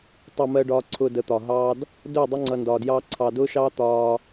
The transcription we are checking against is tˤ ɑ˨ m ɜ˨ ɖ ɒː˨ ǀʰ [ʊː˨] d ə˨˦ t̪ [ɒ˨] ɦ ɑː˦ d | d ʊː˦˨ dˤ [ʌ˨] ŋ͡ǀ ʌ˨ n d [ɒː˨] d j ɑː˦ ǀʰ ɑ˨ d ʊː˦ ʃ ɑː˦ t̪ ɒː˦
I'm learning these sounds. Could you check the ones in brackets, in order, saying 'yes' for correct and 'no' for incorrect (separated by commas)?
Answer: yes, yes, no, yes